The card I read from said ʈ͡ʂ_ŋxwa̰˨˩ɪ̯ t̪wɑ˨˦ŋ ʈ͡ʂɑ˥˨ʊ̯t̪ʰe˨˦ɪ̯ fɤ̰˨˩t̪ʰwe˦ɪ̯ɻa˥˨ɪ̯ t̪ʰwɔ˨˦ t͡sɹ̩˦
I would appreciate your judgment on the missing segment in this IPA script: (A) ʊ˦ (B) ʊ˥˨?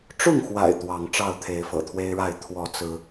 B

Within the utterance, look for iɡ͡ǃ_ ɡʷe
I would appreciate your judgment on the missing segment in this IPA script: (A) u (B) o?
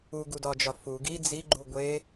A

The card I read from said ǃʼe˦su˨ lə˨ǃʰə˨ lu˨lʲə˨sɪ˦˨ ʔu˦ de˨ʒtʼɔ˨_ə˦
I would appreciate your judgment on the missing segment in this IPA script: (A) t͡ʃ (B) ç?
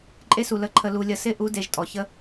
B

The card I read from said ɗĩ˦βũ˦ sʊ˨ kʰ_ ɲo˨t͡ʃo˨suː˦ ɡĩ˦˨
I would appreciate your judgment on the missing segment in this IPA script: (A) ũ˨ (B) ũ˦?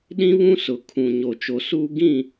A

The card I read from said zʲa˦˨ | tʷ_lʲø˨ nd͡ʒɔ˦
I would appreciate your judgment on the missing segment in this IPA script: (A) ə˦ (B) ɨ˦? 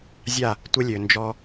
A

